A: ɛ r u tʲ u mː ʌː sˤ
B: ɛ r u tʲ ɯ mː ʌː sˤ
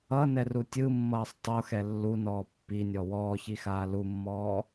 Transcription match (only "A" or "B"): B